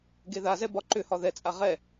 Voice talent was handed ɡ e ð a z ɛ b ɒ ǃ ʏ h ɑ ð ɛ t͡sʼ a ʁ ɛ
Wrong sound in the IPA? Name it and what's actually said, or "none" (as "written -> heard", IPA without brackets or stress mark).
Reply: ɑ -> ɒ